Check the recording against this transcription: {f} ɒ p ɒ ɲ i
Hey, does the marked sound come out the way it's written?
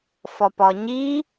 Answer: yes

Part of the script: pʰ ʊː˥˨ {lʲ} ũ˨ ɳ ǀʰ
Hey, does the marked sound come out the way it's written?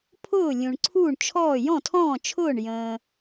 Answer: yes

